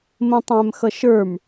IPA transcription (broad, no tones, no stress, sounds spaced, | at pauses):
m ə̃ tˤ æ̃ m x ʌ ʃ ə˞ m